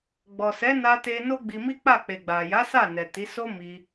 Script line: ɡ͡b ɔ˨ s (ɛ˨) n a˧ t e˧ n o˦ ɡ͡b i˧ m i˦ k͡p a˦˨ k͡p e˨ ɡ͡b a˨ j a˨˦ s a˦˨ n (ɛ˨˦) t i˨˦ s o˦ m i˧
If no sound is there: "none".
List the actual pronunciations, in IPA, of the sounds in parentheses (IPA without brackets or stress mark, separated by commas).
ɛ˨˦, ɛ˨